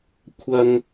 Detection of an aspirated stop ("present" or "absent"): present